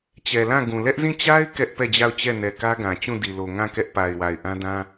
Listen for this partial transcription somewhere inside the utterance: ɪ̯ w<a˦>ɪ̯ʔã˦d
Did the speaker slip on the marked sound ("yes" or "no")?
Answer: yes